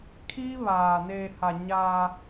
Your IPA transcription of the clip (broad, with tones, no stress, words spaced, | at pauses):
kʰiː˦βaː˨ neː˨ha˨ ɲaː˦